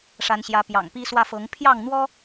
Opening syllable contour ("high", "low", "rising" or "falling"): rising